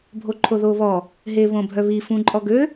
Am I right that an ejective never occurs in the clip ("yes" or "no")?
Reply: no